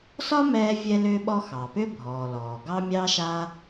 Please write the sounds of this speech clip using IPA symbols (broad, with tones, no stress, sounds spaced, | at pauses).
s ɒ˥ m ɛː˥ vʲ ɛ˥ l ʏː˥ ɓ ɔ˥ x ɑ˩ p ʏ˥ bʱ ɔː˩ l ɔː˩ ɡ ɑ˥ mʲ ɑ˥ ʃ a˥